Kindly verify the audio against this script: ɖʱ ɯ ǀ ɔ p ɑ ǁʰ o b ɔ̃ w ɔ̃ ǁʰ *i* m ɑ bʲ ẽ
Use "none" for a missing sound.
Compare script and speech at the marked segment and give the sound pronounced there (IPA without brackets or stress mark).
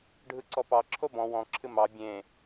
ɨ